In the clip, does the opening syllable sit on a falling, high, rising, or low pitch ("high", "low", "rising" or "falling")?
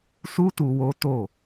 high